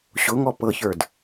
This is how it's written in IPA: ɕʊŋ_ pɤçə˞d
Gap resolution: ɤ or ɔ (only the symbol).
ɔ